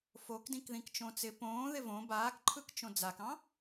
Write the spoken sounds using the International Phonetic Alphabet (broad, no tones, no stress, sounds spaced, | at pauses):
f o k d ĩ k ð ĩ k t͡ʃ õ t͡s ɪ p õː ð ɪ v õ b aː k ǃʰ ɯ k t͡ʃ õ d͡z a k ɑ̃